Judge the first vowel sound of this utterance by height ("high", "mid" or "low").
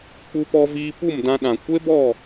high